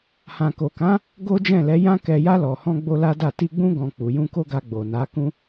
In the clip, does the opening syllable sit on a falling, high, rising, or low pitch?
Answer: low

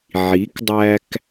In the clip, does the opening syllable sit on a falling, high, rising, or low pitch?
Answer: rising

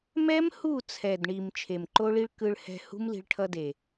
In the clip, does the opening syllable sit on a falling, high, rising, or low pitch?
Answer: high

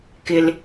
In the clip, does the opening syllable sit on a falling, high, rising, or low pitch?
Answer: low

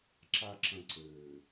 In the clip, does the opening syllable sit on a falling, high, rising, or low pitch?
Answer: low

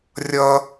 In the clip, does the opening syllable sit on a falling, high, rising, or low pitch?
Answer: high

